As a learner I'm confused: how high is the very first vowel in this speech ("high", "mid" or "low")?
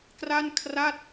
low